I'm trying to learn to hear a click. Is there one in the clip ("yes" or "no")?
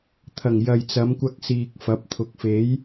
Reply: no